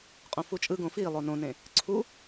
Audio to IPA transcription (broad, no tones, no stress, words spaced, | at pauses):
qʼõfut͡ʃʼɯɡõ fi lˠonõnẽ | ǀʰu